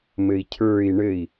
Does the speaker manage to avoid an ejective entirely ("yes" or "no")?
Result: yes